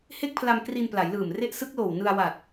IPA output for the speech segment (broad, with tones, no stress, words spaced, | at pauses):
he˥˩k̚pʰla˧m kri˧npla˩˦jlɯː˨˩m re˦˥ʔsɯ˦˥k̚loː˨˩w nɯ˧a̯wa˨˩t̚